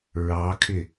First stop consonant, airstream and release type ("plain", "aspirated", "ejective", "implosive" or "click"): aspirated